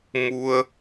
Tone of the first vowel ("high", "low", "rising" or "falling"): high